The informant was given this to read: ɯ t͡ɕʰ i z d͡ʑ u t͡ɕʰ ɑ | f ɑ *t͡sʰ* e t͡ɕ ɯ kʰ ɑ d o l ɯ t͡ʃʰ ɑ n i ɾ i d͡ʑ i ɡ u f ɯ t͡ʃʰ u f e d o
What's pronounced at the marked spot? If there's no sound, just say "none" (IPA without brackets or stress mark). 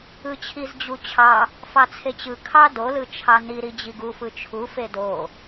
t͡sʰ